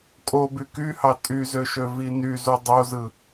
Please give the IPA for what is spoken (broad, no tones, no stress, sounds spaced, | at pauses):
kʼ o b y k y h ɑ tʼ y z ø ʃ ø v i n y z u dˤ o z ɯ